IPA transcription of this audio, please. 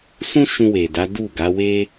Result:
s ũ˦ ʃ ũ˧ w e˨ d a˨˦ d u˦˨ ɡ a˨˦ w e˦

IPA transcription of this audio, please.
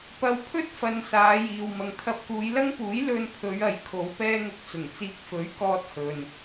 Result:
p ɐ˨˧ w pʰ ɵ˥ t̚ f ɐ˨ n s aː˨˧ j iː˨ w m ɐ˨ ŋ t̪ʰ ɐ˧ p̚ k uː˨˧ j l ɐ˥ ŋ p uː˨˥ j l ɵ˧ n pʰ ɵ˨˧ ɥ ɐ˨ j kʰ o˨˧ w p ɛː˥ ŋ ʊ˧ k̚ t͡s ʊ˨˩ ŋ t͡s iː˧ k̚ f ɵ˨˥ ɥ k ɔː˧ t̚ h ɵ˨ n

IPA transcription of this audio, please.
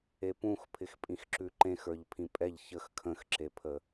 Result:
e p ũ x pʰ ɪ x pʼ ĩ x ǁ ʉ ǃ ẽ x ə˞ ʎ pʰ ĩ pʼ ɛ ʎ ç ə x kʰ ə̃ x ǁ e pʰ ə

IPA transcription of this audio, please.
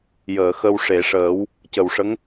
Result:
j əː˨˩˨ x ə˧ w ʂ e˨˩˨ ʂ əː˨˩˦ w | c ə˨˩ w ʂ ə˧˥ ŋ

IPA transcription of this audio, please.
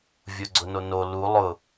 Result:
vʲ o ɡ͡ǀ ʊ n o n o l u lˠ ʊ

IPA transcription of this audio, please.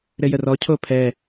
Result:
ɾ ɘ j ə r ɔ cʰ o pʰ ɛ

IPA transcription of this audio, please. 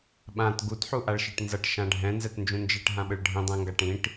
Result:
ɓ ã t ɡ u t ħ u ʔ a ɭ ʃ i ʈ n z ʌ ʈ ʃ ã ɖʱ ɛ̃ n z ɛ t n d͡ʒ ũ n d͡ʒ i ʈ ɦ ã ɓ ɯ ɭ ɖʱ ĩ dˤ ɛ̃ ŋ ɡ a ʈ ĩ ʈ

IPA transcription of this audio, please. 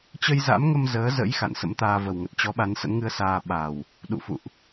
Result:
t͡ɕ ə˧ j z a̰˧˥ m ŋ ə˧ m z əː˨˦ z ə̰˧˥ j x a̰˧˨ n s ə̰˧˥ m t̪ aː˧ v ə˨˩ w ŋ ə˨˩ t̚ t͡ɕ ɔ˨˦ ɓ a˨˦ n s ə̰˧˥ n ŋ ɨ˧ ə̯ s aː˧ ɓ a˨˩ w | ɗ ṵ˧˨ f ṵ˧˨ ʔ

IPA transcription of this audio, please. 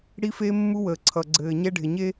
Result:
ɽ i˦ f e˦ mː u˦ w əː˨ ǀʰ ʌ˨ ɡ͡ǀ ɘː˨ ɲ ɛ˦ ɖʱ ɪ˨ ɲ e˦

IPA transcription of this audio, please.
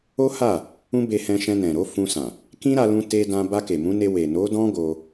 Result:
o˦ h a˦˨ | ũ˦ b e˧ h ɛ̃˧ ʃ ɛ̃˧ n ɛ̃˨ ɾ o˨˦ f ũ˧ s ã˨ | k ĩ˦ ɾ a˧ l ũ˧ t e˧ d ã˧ b a˧ k e˨ m ũ˨˦ n e˧ w e˨ n o˨˦ d ɔ̃˦ ɡ o˧

